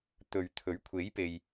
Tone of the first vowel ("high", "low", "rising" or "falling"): low